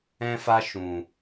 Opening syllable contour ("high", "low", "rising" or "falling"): high